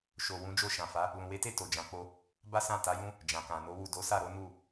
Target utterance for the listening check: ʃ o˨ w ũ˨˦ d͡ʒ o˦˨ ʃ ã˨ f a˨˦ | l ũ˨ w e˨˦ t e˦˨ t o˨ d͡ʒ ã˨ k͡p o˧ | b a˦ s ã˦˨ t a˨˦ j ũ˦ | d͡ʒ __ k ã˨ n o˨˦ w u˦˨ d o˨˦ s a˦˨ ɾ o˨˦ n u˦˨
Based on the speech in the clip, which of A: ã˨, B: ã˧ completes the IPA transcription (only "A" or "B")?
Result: A